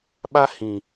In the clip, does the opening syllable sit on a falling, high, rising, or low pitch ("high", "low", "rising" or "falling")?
high